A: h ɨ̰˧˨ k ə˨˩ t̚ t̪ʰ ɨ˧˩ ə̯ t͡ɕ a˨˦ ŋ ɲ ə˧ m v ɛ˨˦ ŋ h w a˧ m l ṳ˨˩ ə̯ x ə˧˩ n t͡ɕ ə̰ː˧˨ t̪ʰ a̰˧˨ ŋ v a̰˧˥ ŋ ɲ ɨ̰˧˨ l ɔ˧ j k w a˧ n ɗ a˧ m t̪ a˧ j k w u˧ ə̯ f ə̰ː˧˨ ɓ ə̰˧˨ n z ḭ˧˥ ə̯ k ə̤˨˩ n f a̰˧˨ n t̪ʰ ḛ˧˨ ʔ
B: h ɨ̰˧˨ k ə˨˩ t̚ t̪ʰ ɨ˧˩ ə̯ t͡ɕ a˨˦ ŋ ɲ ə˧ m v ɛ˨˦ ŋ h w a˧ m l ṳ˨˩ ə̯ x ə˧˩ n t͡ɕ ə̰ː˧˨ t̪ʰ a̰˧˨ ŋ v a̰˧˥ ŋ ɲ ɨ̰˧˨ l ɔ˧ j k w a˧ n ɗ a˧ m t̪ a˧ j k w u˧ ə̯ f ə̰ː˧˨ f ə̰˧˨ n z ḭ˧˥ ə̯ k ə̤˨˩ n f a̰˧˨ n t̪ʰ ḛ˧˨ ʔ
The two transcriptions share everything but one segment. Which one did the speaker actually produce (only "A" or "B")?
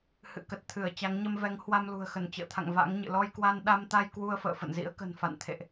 B